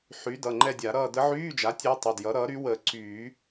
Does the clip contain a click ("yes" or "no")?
yes